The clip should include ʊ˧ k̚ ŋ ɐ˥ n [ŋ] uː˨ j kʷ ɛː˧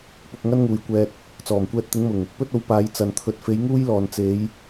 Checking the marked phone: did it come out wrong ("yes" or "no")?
no